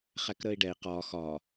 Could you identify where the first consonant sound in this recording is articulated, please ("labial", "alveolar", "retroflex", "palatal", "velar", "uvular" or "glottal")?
uvular